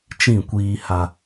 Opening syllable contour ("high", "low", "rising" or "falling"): falling